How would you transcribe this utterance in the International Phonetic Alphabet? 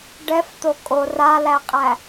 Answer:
ɖ ɛ f t̪ o kʼ o r a l æ qʼ æ

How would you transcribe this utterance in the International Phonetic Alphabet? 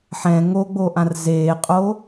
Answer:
ħ ɛ̃ ŋ o ɡ͡b o ʔ ã r z eː qʼ o

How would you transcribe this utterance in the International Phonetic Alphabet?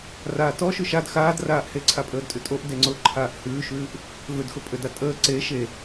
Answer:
r aː t ɔ ʃ ʉ ʃ a d x aː d r aː ʔ h e ǀʰ a pʼ əː d tʼ ʉ tʼ o ʔ d e ŋ͡ǀ ʊ ǃʰ aː ʔ h ʉː ʃ ʉː ʔ | v ø d x ʊ pʼ ø d a tʼ əː ǀ e ʃ e

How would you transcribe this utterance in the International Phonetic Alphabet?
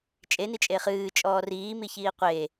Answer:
t͡ʃʼ e n i t͡ʃʼ e χ ɨː t͡ʃʼ ɔː r iː m i ç iː qʷ e

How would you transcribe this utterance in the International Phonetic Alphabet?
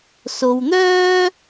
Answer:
s o˨ w n̪ œː˥

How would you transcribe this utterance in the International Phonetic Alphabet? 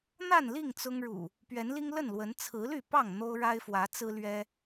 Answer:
n̪ a˥˨ n l i˥˨ ŋ t͡s ʊ˦ ŋ ɻ ṵ˨˩ | p ɥ ɛ˨˦ n l i˦ ŋ l ə˥˨ n l w ə˨˦ n t͡sʰ ɹ̩˨˦ l y˥˨ p ɑ˥˨ ŋ n̪ o˦ ʊ̯ ɻ a˦ ɪ̯ f w ä˨˦ t͡s ɹ̩˦ l ɥ ɛ˦

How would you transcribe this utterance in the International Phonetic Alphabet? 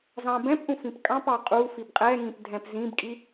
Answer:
z ɑ̃ b ɛ̃ p ʔ ũ f ĩ p kʼ ɑ̃ p ɑ qʼ u f i b qʼ ɛ ŋ ĩ p dʱ ɛ̃ p z ĩ b kʼ i

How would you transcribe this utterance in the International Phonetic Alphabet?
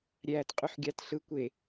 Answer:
ɾʲ æː t qʼ y ħ ɡʲ ɑ t ɬ ɯ kʷ e

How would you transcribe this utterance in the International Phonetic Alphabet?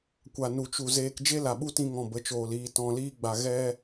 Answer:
kʷ a˨ n u˨ t͡ʃ u˨ z eː˧ k d͡ʒ e˦ l a˨ ɓ u˦ t ĩ˧ ŋ ɔ̃˨ b ə˨˦ t͡ʃ oː˨ l iː˧ t ɔ̃˧ l iː˦ ɡ͡b a˧ ɣ ɛ˦

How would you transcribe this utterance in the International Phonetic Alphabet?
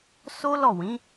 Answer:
s o˦ l ɔ˦˨ w ĩ˨˦

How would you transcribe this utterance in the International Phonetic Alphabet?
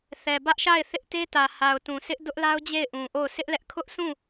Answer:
θ ɛ˨ b ä˦ ʔ ʃ a˦˨ ɪ̯ θ ɪ˦ ʔ t e˦ t ä˨ h a˨ ʊ̯ t ũ˨ s ɪ˦ ʔ d ʊ˦ ʔ l a˦ ʊ̯ d͡ʑ e˦˨ ɪ̯ ʔ ũ˨ ʔ o˦˨ ʊ̯ s ɪ˦ ʔ l ɛ˦ ʔ kʰ ʊ˦ ʔ sʰ ũ˦˨

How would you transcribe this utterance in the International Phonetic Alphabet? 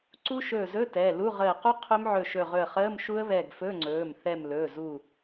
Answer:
ǀ u˦˥ ʃ ɵː˧˩ z ɵ˧˥˧ t ɛː˩˧˩ l u˧˥˧ ʁ əː˧˩ q u˦˥ qʰ ɵ˦˥ m ʕ ɵ˧˩ ʃ ɵ˧˩ ʁ ɵ˧˩ ə̯ χ əː˧˥˧ m ʃ u˦˥ ə̯ β ɛː˧˩ ɡ f ɵ˧˥˧ ŋ͡ǀ ɵː˩˧˩ m θ ɛ˧˩ m l ɵː˩˧˩ z u˧˩

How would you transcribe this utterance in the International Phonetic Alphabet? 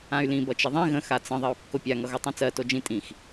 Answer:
ã y̯ l ĩ b ʌ t͡ʃ ə ðˤ ĩ ɣ ə̃ x a t͡s ə̃ ðˤ ɜ u̯ kː o pʲ a ŋ ʌ ɣ o tˤ ĩ t͡s ɜ t o d͡ʒ ĩ tʼ ĩ x

